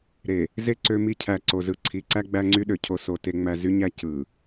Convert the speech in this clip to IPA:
ɾe˨ | ze˦ ǀø˦mi˦ cʰæ˨ǀo˨zɯ˨ ǀʰi˨ ǀæ˦ɡ͡bæ˦ŋ͡ǀy˦ɗø˨ cʰo˦ so˨ te˦ŋ͡mæ˦ zy˦ɲæ˦ cɯ˨

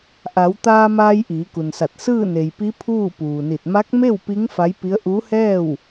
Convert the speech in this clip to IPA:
ʔa˩˧wt̪aː˧maː˧j ʔiː˩˧ku˩nsa˧˩t̚ sɯː˥˨ne˩jpi˧˥ pʰuː˥˨puː˩ni˧˩t̚ ma˧˥k̚me˥˨w pi˧˥ŋ fa˧˥jpi˧˥ə̯ ʔuː˧˥hɛː˥˨w

